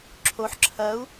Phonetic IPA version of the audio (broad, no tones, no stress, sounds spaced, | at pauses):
ǁʰ o ħ ǁʰ ɐ u̯